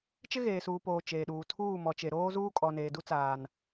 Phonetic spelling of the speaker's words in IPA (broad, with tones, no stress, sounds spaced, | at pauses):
t͡ʃ ɪ˦ ɣ eː˨ s uː˨ p oː˨ t͡ʃ eː˨ ɗ uː˨ tʰ uː˦˨ m ɔ˨ t͡ʃ e˨ ɾ oː˦ z uː˦ kʼ ɔ˨ n eː˨ d u˦ t͡s aː˨ n